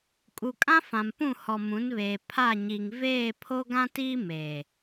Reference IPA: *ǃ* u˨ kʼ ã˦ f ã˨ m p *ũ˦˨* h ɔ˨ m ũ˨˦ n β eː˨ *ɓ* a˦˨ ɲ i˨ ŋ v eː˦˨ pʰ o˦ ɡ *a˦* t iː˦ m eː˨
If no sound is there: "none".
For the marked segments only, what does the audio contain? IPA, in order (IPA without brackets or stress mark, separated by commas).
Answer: kʼ, ũ˦˨, pʰ, ã˦